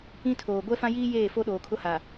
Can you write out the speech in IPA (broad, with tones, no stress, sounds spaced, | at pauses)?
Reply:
ĩ˦ tʰ oː˨ ɡʷ ɛ˦ f ã˦ j iː˦ j eː˦˨ f o˦ ɗ oː˨ kʰ ʊ˦ h a˨